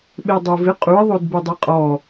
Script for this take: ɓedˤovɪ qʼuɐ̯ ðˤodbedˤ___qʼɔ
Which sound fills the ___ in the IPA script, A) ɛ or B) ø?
A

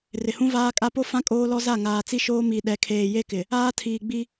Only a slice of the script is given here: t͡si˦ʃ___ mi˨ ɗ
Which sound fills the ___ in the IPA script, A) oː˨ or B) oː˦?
B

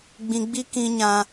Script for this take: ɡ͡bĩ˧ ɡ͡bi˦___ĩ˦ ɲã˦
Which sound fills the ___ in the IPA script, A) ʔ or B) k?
B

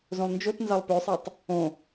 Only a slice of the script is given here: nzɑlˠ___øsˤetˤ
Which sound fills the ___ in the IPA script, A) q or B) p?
B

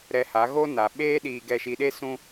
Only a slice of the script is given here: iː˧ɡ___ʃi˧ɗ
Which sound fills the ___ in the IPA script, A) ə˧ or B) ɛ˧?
B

